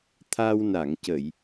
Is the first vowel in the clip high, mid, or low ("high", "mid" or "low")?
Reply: low